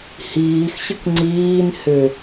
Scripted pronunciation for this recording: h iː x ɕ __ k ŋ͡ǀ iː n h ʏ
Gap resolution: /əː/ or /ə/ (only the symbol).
ə